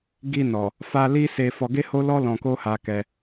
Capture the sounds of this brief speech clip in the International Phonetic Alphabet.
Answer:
ɡi˧ nɔ˨ | fa˧ li˦se˧ fɔ˧ɡe˦ho˦lɔ˦ lɔ̃˧ko˦ha˧ kɛ˧

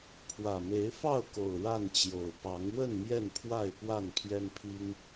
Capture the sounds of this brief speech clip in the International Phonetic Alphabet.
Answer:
pʰwä˨˩me˨˦ɪ̯fɑ˥˨ʊ̯ko˨˩ʊ̯ ɻa˥˨nt͡ɕjo˨˩ʊ̯ pɑ˨˦ŋ wə˥˨n mjɛ˥˨npʰwa˥˨ɪ̯pwa˥˨n pʰjɛ˦npʰi˦ŋ

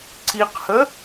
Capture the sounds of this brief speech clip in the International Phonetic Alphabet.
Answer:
ǀiqhə

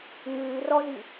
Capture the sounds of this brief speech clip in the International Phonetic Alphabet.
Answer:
ŋʉːrɔzi

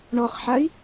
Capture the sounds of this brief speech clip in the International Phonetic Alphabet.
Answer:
ɳɔχħai̯

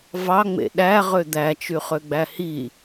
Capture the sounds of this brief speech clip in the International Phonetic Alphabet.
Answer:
vɑŋ͡mḛ ɗæʁø d̪æt͡ʃyχøɡ͡bæ hi

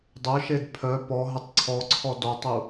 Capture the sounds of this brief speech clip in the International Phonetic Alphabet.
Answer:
dˤœʃed pʰœ pɔɦətˤ ǀʰɔǀʰɔ dɔtˤu

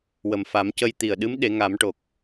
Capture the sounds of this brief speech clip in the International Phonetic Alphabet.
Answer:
wə˨˩mfa˨˩˦mcə˧j t̪i˨˩ə̯ɗɨ˧˥m ɗe˨˩˦ŋa˨˩˦mʈo˨˩k̚

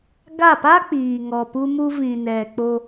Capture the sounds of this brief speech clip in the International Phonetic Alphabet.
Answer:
ɡa˦˨pa˦k͡piː˨ ŋɔ˧pu˦mu˦ vĩ˨nɛ˨k͡po˧

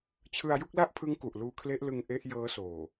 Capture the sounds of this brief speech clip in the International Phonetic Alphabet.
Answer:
t͡ɕʰɯ˧a̯ju˥˩k̚la˥˩ʔpʰɯ˦˥ŋ ku˨˩ʔluː˧kʰle˦˥ʔlɯ˧ŋ ʔe˦˥ʔ jɤː˦˥soː˨˩

